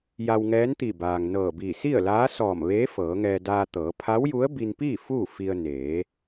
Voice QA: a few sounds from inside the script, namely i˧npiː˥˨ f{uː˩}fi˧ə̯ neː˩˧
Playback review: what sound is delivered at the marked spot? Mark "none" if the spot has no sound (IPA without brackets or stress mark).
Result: uː˥˨